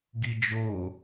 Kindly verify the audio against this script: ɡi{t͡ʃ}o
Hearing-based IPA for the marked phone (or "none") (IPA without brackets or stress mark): d͡ʒ